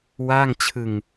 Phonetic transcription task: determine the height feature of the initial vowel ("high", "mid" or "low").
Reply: low